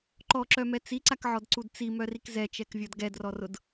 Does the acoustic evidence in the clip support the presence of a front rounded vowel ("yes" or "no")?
yes